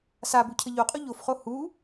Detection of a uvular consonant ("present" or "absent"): present